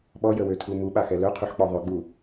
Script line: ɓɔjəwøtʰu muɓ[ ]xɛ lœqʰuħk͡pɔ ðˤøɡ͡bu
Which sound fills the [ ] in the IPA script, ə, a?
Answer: a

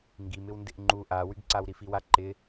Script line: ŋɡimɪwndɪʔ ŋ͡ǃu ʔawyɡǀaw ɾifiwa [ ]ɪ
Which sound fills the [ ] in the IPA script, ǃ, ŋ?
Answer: ǃ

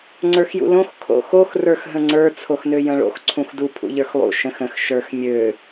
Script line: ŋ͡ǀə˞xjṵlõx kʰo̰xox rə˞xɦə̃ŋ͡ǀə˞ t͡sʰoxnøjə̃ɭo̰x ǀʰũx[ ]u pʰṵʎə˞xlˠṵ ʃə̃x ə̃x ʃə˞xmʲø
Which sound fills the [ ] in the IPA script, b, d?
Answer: d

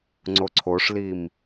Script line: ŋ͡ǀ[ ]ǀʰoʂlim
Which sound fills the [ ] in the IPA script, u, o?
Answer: o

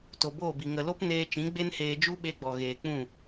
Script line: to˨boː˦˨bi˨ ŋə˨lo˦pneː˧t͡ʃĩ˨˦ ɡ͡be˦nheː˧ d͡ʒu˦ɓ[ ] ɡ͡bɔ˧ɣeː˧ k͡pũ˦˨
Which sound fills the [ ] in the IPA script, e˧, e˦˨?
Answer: e˧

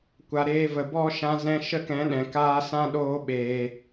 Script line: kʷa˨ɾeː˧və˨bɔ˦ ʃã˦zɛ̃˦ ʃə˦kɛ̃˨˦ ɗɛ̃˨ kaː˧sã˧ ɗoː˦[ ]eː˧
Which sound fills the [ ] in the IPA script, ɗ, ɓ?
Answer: ɓ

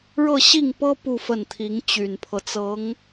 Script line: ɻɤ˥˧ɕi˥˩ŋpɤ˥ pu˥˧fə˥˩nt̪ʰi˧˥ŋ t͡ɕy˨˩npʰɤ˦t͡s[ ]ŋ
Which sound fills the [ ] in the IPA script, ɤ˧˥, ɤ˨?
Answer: ɤ˧˥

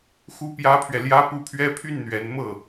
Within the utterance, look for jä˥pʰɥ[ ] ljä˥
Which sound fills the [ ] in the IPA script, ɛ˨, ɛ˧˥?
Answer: ɛ˨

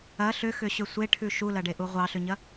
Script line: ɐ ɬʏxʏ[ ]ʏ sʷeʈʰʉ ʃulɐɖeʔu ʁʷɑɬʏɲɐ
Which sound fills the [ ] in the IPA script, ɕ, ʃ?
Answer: ɕ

